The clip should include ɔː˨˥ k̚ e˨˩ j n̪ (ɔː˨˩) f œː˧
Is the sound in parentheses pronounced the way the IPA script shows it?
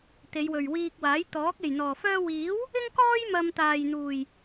yes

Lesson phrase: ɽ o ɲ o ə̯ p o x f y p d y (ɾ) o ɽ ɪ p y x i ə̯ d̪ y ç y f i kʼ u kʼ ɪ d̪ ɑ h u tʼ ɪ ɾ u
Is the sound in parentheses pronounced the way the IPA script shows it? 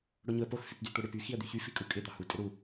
no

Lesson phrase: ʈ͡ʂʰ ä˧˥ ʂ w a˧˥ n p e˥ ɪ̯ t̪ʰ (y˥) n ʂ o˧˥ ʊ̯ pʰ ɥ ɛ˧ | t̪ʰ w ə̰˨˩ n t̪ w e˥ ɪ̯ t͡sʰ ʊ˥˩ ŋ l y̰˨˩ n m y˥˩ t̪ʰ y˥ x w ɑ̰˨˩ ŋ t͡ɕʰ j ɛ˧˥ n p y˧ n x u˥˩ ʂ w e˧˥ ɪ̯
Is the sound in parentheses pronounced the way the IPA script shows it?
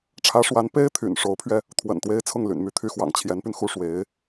no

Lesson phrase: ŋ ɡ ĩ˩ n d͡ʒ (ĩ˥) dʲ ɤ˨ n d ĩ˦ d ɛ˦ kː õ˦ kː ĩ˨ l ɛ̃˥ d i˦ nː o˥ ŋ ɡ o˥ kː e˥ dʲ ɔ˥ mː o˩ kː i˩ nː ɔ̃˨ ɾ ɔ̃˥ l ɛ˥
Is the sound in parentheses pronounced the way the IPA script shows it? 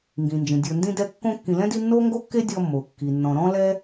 no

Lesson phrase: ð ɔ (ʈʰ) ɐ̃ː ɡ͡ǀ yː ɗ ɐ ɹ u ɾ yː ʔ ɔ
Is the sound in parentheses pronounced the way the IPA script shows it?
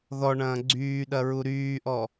no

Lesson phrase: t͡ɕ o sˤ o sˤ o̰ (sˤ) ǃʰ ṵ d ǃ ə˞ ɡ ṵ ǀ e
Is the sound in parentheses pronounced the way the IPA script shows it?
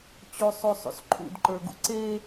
no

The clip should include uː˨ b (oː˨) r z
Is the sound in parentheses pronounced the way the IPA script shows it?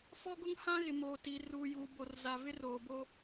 no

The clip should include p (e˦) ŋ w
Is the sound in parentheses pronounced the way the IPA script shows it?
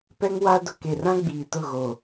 no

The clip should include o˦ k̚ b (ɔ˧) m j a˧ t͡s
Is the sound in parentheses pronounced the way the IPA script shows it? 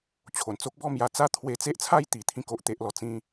no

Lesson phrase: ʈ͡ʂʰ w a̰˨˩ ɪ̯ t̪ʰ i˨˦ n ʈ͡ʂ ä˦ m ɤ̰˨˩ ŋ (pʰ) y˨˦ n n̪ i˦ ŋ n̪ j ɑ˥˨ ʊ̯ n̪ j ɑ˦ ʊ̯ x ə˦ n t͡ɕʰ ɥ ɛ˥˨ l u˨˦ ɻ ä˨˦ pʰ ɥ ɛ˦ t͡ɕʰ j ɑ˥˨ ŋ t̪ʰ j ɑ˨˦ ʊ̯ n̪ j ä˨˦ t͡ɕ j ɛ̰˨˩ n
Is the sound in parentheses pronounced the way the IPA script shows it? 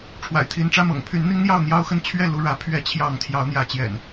yes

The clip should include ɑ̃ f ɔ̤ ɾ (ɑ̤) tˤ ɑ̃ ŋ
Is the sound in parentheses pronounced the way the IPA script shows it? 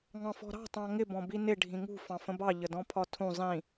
yes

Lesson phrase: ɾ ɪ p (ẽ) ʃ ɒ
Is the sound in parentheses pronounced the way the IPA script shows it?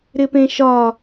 yes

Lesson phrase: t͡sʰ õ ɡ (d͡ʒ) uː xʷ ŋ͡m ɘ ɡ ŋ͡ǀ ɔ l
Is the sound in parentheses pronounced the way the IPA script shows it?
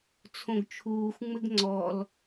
no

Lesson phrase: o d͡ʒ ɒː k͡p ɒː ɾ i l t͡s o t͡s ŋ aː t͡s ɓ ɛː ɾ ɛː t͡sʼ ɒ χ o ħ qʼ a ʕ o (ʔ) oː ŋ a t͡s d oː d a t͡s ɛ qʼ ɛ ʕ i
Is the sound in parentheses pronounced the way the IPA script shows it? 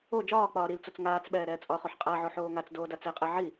no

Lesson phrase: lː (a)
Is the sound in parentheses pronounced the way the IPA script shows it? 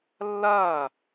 yes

